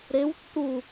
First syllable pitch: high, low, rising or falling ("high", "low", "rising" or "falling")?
rising